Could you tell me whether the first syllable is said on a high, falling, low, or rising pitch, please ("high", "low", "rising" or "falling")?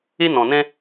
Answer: high